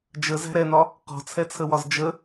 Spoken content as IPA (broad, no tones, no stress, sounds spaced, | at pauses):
d͡ʒ ə z æ̤ ɾ ɛ n̪ ɒ | q ɔ̤ t͡sʰ ɛ t͡sʰ ə w ɒ z d͡ʒ ə